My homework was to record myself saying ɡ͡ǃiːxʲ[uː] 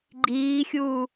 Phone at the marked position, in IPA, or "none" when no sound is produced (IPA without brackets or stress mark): uː